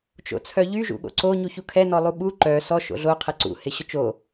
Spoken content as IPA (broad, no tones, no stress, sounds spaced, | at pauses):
t͡ʃ o̰ t͡sʰ œ ʎ y ʒ ṵ ɠ o̰ ǀ o ɲ u ç u kʰ ɛ n ɔ lˠ u ɓ u ǃ œ s ɔ ʃ o̰ ɮ o qʰ ɛ ǀ ṵ h ɪ ɕ ʊ t͡ʃ o